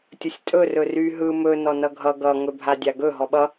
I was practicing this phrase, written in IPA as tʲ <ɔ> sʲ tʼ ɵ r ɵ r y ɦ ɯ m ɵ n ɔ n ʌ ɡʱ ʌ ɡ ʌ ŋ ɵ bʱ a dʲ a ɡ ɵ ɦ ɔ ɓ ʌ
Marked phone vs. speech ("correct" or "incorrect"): incorrect